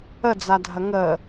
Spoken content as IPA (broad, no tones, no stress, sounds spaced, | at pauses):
ə d͡z a dʱ ɐ ŋ ə